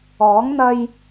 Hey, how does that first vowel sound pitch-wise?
rising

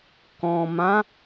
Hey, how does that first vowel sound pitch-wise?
low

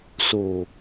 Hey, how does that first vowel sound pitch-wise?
low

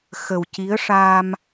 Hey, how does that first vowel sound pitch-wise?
low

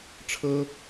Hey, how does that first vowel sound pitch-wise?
high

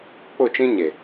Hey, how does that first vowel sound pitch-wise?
falling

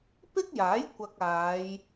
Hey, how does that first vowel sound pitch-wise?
high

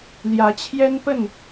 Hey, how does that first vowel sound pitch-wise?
rising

